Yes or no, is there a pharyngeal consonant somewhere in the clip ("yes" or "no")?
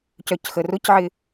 yes